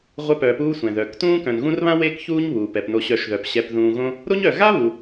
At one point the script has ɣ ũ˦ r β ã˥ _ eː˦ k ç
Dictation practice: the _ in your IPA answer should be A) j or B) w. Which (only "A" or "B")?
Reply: B